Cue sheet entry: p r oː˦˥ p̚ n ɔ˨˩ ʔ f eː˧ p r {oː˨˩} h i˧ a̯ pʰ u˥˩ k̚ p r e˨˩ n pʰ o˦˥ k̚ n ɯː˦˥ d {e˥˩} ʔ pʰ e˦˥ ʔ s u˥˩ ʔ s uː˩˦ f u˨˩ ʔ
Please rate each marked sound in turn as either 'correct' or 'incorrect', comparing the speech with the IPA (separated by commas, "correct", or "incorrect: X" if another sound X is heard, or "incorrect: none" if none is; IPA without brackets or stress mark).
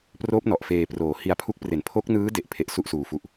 correct, correct